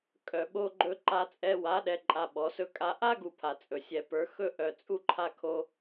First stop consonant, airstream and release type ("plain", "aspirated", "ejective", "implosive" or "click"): ejective